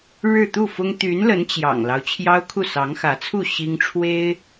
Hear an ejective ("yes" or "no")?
no